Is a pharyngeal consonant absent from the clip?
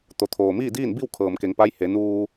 yes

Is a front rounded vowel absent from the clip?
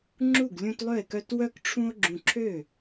no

